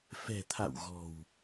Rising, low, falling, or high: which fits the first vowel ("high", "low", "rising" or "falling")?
low